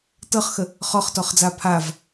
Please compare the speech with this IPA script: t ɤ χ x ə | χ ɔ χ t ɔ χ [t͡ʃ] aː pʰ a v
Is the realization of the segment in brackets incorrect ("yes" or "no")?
yes